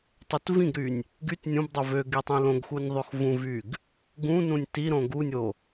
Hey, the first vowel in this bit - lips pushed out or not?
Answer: yes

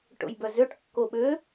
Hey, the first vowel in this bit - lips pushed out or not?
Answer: yes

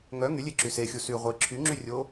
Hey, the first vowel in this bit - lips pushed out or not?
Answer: yes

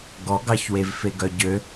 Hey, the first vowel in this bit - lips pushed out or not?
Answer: yes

